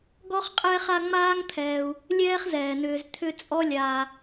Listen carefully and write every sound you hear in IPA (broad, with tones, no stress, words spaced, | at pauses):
ɡɔ˥χqʼɛː˦χa˦ ŋ͡maː˥ŋt̪ʰɛː˨u̯ | lʲɛː˦χzɛː˩n̪ʏː˨z t̪ʰʏ˦t͡sʼɔ˦ lʲaː˨